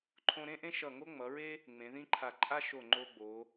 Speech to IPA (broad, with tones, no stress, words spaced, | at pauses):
ǃʰõ˧ɾẽ˥ʔẽ˥ ʃʌ˧˩ ŋo˥ŋ͡mʌ˩˧ɹe˥ | ŋ͡mẽ˩˧ðĩ˥ǃʰa˧˩ ǃʼa˥ʃo˧˩ŋ͡ǃo˧ɡ͡bo˩˧